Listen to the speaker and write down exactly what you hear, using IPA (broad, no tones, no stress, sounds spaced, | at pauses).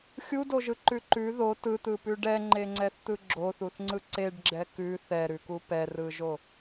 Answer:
xʲ u d o ʒ ɯ ǃ ʉ ǃ ʉ ð o t ɯ t̪ ɯ p ʉ ɖ ɛ ŋ͡ǃ e ŋ͡ǀ ɛ θ t̪ ɯ ɡ͡ǁ o θ u θ ŋ͡ǀ ɯ ǀ e ɖ ɡ͡ǁ ɛ k ʉ θ ɛ ɾ ʉ k u p ɛ r ɯ ʒ o